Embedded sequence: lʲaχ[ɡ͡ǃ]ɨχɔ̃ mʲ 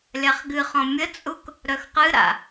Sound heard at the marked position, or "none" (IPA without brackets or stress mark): ɡ